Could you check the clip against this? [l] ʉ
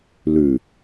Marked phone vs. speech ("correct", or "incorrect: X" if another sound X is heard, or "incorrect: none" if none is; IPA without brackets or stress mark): correct